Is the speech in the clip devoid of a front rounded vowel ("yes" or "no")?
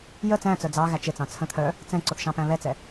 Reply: no